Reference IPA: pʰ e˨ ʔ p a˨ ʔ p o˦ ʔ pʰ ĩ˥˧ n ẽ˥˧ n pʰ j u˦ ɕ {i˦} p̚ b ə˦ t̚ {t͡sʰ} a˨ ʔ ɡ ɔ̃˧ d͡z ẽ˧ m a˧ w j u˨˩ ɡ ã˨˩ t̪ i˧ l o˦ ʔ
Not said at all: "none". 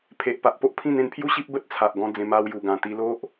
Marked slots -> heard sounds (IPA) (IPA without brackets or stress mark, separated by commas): i˦, t͡sʰ